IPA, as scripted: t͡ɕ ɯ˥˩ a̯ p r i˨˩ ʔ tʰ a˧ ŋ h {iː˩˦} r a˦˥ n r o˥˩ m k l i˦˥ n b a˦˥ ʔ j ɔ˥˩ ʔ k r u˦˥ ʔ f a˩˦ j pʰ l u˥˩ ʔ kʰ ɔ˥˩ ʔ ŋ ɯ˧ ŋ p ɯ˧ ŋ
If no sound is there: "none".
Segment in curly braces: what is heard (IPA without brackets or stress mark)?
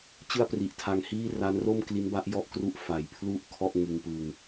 iː˥˩